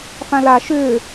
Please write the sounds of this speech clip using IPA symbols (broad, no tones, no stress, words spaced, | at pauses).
fãla ʃʏː